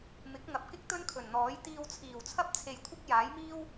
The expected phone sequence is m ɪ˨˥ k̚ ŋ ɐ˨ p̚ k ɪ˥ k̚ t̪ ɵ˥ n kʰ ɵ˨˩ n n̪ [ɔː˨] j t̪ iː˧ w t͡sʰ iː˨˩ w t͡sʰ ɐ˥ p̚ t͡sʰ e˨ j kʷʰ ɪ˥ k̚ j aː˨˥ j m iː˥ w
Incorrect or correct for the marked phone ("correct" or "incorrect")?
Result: incorrect